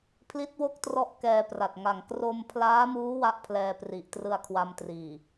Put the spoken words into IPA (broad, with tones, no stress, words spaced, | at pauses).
pʰli˦˥t̚wo˥˩k̚trɔ˦˥ʔ kɛː˧pra˨˩t̚ŋa˨˩ŋ kro˧mpʰlaː˦˥muː˦˥ wa˥˩ʔpʰlɛː˧pri˨˩ʔ trɯ˧a̯kʰwa˧mtriː˨˩